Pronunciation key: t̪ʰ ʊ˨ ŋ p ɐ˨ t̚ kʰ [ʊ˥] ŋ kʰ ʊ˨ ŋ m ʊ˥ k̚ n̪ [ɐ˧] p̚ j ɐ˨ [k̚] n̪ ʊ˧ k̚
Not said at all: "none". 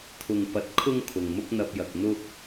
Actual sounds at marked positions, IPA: ʊ˥, ɐ˧, k̚

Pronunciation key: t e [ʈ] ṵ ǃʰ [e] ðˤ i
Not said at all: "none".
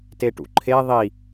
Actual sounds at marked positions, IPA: ʈ, e

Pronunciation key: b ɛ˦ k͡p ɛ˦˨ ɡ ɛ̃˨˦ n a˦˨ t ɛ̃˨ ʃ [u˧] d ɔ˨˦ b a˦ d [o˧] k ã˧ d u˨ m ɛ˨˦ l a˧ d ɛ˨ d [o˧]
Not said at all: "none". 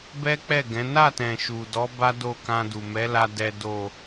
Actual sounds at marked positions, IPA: u˨, o˦˨, o˨

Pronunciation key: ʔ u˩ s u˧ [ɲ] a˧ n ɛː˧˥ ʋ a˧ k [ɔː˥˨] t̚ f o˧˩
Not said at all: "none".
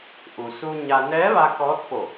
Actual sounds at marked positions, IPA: ɲ, ɔː˧˥

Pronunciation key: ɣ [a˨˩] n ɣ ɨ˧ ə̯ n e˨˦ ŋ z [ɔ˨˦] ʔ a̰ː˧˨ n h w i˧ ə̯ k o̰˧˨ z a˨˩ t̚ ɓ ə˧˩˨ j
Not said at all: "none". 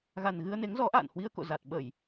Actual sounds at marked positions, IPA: a˨˩, ɔ˨˦

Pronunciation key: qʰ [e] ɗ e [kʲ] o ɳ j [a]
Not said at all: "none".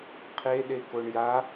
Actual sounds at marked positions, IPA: e, k, a

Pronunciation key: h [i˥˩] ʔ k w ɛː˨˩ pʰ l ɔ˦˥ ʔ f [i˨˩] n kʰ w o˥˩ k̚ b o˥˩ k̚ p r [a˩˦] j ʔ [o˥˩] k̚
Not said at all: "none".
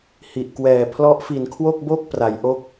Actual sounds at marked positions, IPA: i˨˩, i˨˩, a˩˦, o˥˩

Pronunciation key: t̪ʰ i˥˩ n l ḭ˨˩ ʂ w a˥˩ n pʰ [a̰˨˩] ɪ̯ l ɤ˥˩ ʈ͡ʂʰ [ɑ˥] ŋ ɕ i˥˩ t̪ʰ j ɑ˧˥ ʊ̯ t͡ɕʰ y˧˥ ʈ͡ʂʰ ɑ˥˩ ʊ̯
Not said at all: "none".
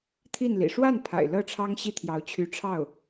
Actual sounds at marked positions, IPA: a̰˨˩, ɑ˥

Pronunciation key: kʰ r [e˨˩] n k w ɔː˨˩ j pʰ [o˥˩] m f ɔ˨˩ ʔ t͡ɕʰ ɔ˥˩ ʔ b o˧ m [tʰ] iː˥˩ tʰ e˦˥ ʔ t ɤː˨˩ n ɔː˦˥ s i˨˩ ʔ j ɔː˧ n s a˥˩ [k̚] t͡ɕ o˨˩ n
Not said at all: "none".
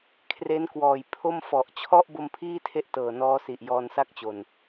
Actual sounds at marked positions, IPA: e˦˥, o˥˩, pʰ, k̚

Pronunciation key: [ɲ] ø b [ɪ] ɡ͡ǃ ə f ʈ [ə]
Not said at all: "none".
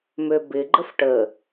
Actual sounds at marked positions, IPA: m, ɪ, ə

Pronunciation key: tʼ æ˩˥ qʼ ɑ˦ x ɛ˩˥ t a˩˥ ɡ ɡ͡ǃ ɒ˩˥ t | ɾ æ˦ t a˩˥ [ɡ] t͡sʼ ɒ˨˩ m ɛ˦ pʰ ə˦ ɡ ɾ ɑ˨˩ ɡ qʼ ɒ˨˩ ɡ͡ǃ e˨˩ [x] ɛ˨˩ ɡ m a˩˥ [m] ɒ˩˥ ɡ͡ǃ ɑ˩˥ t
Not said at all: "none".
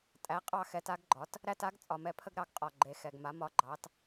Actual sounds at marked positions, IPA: ɡ, x, m

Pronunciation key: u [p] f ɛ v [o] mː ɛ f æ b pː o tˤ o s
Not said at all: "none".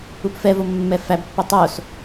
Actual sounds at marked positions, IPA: p, o

